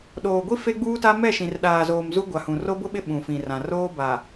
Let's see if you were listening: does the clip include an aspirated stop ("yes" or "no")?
no